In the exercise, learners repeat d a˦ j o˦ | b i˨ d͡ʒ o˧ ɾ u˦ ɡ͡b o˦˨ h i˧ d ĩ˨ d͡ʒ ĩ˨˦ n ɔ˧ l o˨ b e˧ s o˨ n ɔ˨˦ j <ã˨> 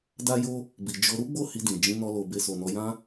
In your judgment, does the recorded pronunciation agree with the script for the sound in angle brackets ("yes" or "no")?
no